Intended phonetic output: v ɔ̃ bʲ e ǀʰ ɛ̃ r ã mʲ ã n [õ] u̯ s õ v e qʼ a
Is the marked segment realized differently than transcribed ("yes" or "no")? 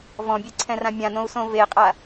no